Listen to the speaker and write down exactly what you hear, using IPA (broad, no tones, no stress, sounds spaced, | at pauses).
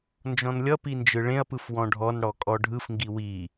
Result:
n d͡ʒ ɔ̃ n lʲ ʌ p i n d͡ʒ ɯ ɭ ẽ ɐ̯ p ɯ f w ɔ̃ ɖʱ ɔ n ɽ ɔ kʼ ɔ ɖʱ ɯ f ŋ ɡ i w i